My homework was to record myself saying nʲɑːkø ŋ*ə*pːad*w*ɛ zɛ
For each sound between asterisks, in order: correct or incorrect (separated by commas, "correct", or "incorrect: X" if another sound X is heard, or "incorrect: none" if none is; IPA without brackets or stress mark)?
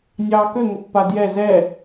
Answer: correct, incorrect: j